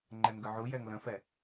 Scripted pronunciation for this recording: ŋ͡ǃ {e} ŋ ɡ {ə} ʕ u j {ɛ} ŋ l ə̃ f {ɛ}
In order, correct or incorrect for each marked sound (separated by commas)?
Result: incorrect, correct, correct, correct